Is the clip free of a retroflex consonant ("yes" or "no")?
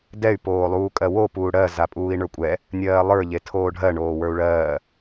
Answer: no